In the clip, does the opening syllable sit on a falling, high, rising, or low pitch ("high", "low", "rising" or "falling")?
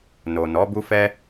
low